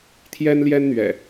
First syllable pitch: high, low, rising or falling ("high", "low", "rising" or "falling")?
high